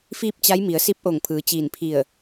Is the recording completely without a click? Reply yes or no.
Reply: yes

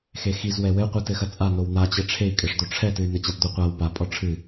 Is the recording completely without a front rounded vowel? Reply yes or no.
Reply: no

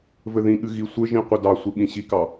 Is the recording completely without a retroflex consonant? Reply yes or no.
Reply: yes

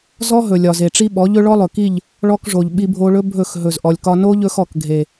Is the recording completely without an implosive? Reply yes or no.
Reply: no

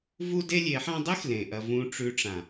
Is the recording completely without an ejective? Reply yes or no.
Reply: yes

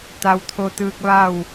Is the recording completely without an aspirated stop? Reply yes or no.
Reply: no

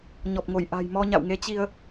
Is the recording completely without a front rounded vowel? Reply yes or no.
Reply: yes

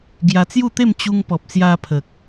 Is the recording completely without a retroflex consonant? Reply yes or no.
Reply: yes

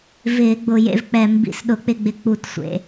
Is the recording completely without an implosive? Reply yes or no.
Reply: no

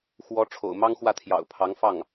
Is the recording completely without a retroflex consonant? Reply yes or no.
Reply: no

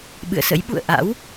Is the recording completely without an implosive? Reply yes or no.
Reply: no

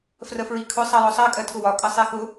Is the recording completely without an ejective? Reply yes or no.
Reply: no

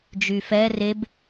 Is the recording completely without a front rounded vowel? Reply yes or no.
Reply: no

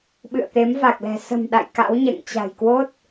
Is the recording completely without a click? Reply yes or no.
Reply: yes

